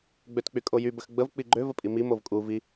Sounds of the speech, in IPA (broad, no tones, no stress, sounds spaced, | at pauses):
ɡ͡b ø t k͡p y kʼ o j y b ə x ɡ͡b ə v k͡p i ɡ͡ǃ ø v ə pʼ i m i m o v kʼ u v i